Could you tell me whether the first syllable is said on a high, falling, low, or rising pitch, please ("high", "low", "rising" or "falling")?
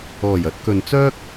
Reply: low